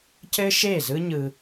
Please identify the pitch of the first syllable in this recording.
high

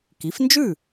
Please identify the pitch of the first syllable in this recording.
rising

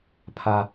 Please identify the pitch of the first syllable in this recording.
high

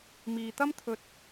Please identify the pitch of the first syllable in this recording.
low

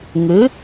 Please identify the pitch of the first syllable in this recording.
rising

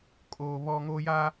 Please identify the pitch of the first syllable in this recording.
high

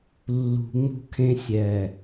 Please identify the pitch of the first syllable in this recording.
low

